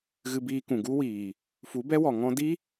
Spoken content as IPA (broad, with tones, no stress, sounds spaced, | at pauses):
ɣ ɨ˧ b iː˧ k ũ˨ ɡ u˦ w iː˨ | f u˨˦ b ɛ˦ w ɔ˨ ŋ ɔ̃˧ d i˦